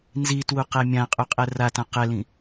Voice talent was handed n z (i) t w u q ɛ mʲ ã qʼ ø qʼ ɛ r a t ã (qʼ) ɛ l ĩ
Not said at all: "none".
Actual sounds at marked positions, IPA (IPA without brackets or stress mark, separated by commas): i, q